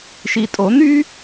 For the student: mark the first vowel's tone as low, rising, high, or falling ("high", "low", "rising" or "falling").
low